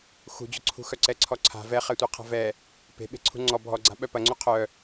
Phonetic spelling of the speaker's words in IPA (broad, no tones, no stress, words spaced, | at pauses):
xṳd͡ʑʊǀʰṳ xœǀɛǀʰɔǀʰa̤ vɛχɛtʷiqʰa̤ vɛ | pe̤ ɓe̤ǀʰṳŋ͡ǀɔ bʱɔɡ͡ǀa̤ ɓœpɐŋ͡ǀu qʰœ